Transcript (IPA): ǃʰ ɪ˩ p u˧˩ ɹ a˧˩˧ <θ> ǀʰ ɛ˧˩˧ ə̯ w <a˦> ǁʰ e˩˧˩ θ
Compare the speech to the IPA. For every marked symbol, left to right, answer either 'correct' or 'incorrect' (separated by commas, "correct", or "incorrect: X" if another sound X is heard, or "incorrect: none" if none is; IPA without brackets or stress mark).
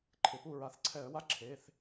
correct, correct